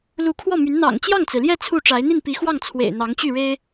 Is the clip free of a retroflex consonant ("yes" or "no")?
no